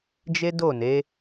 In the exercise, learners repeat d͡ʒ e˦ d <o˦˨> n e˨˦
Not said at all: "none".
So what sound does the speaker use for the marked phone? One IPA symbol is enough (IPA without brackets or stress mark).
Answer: o˦˨